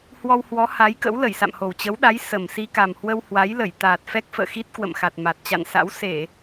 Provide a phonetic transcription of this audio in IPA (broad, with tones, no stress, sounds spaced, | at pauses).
h w ɔ˧ w h w ɔ˨˦ h a˨˦ j k ə̰˧˥ w l ə˧˩ j s a̰˧˨ m h o˨˩ w t͡ɕ ə˨˦ w ɗ a˨˦ j s ə˨˩ m s i˧ k a˨˩ m h w ə˧ w h w a˨˦ j l ə˧˩ j t̪ aː˨˩ t̚ f ɛ˦˥ k̚ f ə̰ː˧˨ x i˦˥ t̚ k w ə̰˧˨ m x a˨˩ t̚ m a˨˩ t̚ t͡ɕ a̰˧˨ n s a̰˧˥ w s e˧˩˨